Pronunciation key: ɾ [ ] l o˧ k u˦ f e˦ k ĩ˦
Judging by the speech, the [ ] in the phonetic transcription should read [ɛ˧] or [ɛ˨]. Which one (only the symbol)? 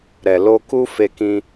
ɛ˨